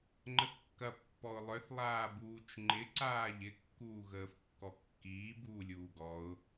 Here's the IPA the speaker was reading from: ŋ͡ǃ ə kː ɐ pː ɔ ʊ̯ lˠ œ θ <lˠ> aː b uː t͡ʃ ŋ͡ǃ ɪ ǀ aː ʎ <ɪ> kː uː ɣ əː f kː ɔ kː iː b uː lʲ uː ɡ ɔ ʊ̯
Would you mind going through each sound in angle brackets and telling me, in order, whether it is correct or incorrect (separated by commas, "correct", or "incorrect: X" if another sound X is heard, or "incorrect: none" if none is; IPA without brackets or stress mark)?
correct, correct